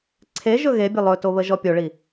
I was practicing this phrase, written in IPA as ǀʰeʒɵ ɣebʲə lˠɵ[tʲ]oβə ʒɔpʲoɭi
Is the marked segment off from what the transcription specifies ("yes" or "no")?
yes